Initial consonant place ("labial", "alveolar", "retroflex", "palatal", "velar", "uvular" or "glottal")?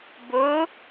labial